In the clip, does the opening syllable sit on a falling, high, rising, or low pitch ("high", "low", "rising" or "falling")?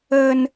high